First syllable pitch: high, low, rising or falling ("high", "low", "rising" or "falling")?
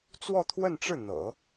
falling